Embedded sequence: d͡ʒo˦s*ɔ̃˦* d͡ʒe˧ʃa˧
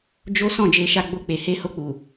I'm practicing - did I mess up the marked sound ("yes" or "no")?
yes